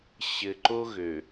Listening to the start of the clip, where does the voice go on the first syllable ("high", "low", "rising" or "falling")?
low